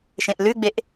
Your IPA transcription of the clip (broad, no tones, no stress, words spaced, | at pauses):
ʃẽʔlʉɡ͡beʔ